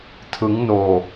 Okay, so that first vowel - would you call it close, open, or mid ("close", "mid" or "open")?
close